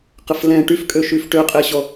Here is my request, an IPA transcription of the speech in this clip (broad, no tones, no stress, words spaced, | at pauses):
qəflɛ̃ ʈyfkʼøʃyf ʈøqʼɛɕɔ